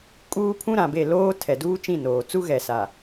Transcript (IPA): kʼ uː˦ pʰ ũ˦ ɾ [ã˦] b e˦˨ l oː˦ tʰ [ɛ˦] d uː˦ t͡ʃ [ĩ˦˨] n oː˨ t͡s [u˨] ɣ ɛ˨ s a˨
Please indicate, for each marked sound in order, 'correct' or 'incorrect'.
incorrect: ã˨, incorrect: ɛ˨, correct, incorrect: u˦

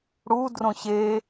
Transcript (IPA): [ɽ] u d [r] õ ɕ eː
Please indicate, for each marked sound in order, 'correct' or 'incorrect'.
correct, correct

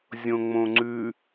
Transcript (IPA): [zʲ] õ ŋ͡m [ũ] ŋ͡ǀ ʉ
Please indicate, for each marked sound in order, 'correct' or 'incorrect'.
correct, incorrect: õ

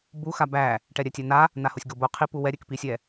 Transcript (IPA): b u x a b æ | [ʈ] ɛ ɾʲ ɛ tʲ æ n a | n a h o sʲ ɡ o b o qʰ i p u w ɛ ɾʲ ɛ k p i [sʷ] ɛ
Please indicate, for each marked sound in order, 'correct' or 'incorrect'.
correct, incorrect: sʲ

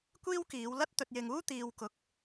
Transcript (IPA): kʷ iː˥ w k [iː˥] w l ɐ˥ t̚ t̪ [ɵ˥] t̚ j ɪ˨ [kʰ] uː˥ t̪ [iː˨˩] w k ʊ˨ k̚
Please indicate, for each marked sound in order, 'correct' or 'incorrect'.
incorrect: iː˨˧, incorrect: ɵ˨, incorrect: ŋ, incorrect: iː˨

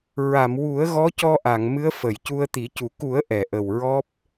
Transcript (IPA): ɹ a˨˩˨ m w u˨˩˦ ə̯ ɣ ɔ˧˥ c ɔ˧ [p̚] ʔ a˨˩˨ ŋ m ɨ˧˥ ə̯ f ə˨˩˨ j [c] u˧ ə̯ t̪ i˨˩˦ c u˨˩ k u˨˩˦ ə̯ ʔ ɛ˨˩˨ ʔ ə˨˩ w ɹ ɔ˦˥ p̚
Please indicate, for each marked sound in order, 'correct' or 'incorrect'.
incorrect: none, correct

